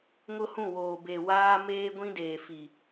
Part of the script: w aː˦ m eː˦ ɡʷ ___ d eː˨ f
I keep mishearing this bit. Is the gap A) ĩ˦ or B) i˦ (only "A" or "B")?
A